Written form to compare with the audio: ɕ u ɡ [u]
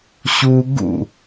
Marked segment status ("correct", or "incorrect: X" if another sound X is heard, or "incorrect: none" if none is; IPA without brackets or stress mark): incorrect: ṵ